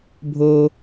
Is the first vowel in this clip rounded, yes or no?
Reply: yes